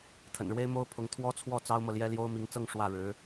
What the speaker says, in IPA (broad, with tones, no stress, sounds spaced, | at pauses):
t̪ʰ ə̰˨˩ n ɻ w e˥ ɪ̯ m o˥ ʊ̯ pʰ ʊ˧˥ ŋ t̪ʰ w ɔ˥ t͡sʰ w ɔ˥˩ t͡s ɑ˥ ʊ̯ m ɤ˨ l j ɛ˥ l j o˥ ʊ̯ m i˧˥ ŋ t͡s ɤ˥˧ ŋ ʂ w ä˥˩ ɻ ɻ̩˧˥